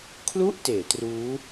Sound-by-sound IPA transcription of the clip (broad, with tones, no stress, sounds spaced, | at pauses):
kʰ l u˥˩ ʔ t eː˩˦ t r uː˦˥